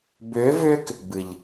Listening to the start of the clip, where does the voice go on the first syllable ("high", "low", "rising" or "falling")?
rising